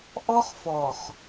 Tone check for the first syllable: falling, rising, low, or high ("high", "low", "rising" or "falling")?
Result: high